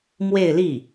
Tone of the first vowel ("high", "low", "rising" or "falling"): falling